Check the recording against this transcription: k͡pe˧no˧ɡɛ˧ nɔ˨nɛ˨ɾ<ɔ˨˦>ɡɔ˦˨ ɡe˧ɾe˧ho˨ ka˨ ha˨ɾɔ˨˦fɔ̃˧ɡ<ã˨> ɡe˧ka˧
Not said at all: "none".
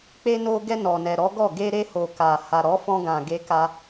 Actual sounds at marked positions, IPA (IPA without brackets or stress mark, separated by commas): ɔ˨˦, ã˨